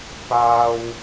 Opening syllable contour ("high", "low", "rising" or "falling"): high